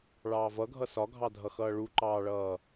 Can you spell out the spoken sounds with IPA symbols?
ɭɑːvʌɡʱʌ sɒɡʱɑdʱʌxʌː ɭuǃɑːɭʌː

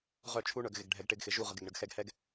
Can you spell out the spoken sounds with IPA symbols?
ʁœ˦˨t͡ʃʰu˦ɳœ˨ɡ ɣɪ˨ɡɖʱɛ˨ɡ ʈɪ˦ɡxɪ˨ ʒu˦˨ ʁə˨ɡɪ˨ɡɳə˨ɡxɛ˦ɡ hɛ˦ɡ

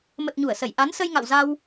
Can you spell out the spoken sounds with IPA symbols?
mə˨˩t̚ɲu˧˩ə̯sə˧˩j ʔa˨˦nsə˧jŋa̰˧˨wza˧w

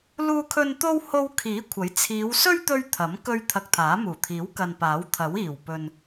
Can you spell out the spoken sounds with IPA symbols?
luː˥kʰɵ˥n t̪o˥w ho˥w kʰiː˨˥ kʷʰɐ˨˥j t͡sʰiː˨˧wsɵ˥ɥ t̪ɵ˥ɥ t̪ʰɐ˨˥m kɵ˥ɥ t̪ʰɐ˧k̚t̪ʰaː˨˥muː˨˩t̪ʰiː˨˥w kɐ˨npaː˨˥wt̪ʰɐ˨˥w iː˨˩w pɵ˨n

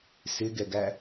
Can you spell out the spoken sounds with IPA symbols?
sɪɡɛɡæ

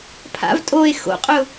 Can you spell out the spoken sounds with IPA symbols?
pʰa̰v tʼoe̯ xo̰qʼʊ

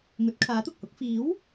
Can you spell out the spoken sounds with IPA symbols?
ŋɵ˨˥t̚ kʰaː˨˥t̪ʊ˨k̚hʊ˨˥k̚ fiː˨˥w

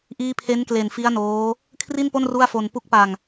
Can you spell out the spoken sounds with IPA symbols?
ʔiː˦˥pʰe˦˥nkle˨˩n fi˦˥a̯noː˦˥ | kʰri˥˩npo˥˩n ru˥˩a̯fo˧n pu˦˥k̚pa˧ŋ

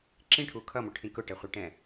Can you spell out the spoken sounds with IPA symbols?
ǁĩʈʰu kʰʌmʊʈʰĩ kʊʈɛχʷiʈɛ̃

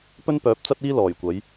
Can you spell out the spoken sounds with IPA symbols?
pɵ˥npœː˨˥p̚t͡sɐ˥t̚iː˥ lɔː˨˩jkʷɐ˨˥j

